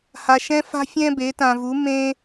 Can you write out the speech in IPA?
h a˧ ʃ ɛ̃˥ f a̤˥ fʲ ɛ̃˥ b e˨˥ t ã˧ v u˨˥ m ẽ˥

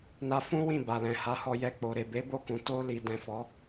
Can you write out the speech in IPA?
n a˧ f ũ˦ w ĩ˦˨ b a˨ l ɛ̃˨ h a˨˦ h ɔ˧ j ɛ˧ k͡p o˨ ɾ e˨ b e˨˦ b o˦˨ k ũ˨ t o˧ l i˨ d ɛ̃˨ f ɔ˨˦

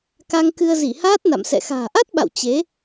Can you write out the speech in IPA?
k a˧ ŋ k ɨ˧ ə̯ z i˧˩ h aː˦˥ t̚ n a̰˧˨ m s ɛ̰˧˨ x a̤ː˨˩ ʔ a˦˥ t̚ ɓ a̰˧˨ w t͡ɕ e˨˦

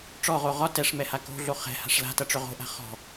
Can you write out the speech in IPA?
ʈ͡ʂ ɔ ʁ o ʁ ɒ t ɛ ʂ m ɛ h a k o̤ ɮ o χ ɛ̤ h a̤ ʂ l a̤ t ʌ ʈ͡ʂ ʏ ʁ o̤ ʔ a̤ χ ɔ̤

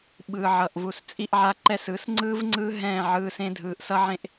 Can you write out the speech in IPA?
ɓ ɯː˨ ʕ ʌ˨ ʔ v u˨ s t͡sʼ i˧ ʔ ʕ a˧ ǃ ɛ˧ s ɯ˨˦ s ŋ͡ǀ ɯː˦ v ŋ͡ǀ ɯː˦ ɦ ɛ̃ː˦˨ ʕ ɯː˧ s ẽ˦ dʱ ɯː˨˦ ʔ s ʌ˦ ʕ ẽ˦ ʔ

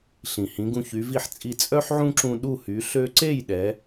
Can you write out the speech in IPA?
ɬ ĩ˩ h ĩ˩˥ ɡ ũ˧ ç y˩˥ v i˥˩ ħ t͡sʼ i˧ t͡sʼ œ˥ ħ ʕ ũ˥ ǁ ũ˧ ɗ u˥˩ h y˩˥ ɬ ø˧ ǀ e˥˩ j ɗ ɛ˩˥

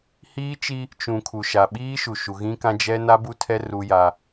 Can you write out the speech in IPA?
h iː˦ t͡ʃ i˦ | t͡ʃ ũ˨ kʰ u˨ ʃ a˨ ɓ iː˦ ʃ u˨ ʃ u˨ ɣ ĩ˦ k ã˦ d͡ʒ ɛ˦ n a˦ b u˦ tʰ ɛ˦ r u˦ j a˦

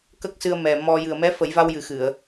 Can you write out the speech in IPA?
k ə˦˥ k̚ s ɨ˧ ə̯ m ɛ˨˩ m ɔ˧ j ɨ˨˩ ə̯ m ɛ˧˥ f ə˨˩˦ j v a˧ w j ɨ˨˩ x ɨ˨˩˨ ə̯

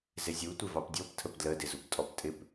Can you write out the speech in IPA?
z ɪ zʲ u tʷ ɪ v ɑ p dʲ ɔ p tʰ ə p d l ə d ɪ z u p tʼ ɔ p tʼ ɪ p

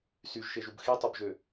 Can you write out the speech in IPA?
s y ʒ ʃ e ʒ u b x i tˤ o b ʒ ø

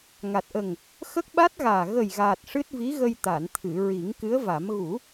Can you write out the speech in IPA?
ŋ a˨˩ t̚ ʔ ə˨˩ ŋ | x ə˦˥ k̚ ɓ a˦˥ t̚ ɣ aː˨˩ ɣ ə˨˩ j ɣ aː˨˩ t̚ ʂ ɨ˦˥ t̚ v i˧˥ ɣ ə˧ j t̪ a˨˩˨ n t̪ʰ ɨ˨˩˨ ɹ i˨˩˦ ŋ k ɨ˧˥ ə̯ v a˨˩˦ m ɣ u˨˩˦

